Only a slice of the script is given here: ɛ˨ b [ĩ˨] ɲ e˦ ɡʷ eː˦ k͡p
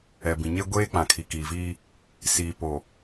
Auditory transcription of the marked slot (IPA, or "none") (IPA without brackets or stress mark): ĩ˨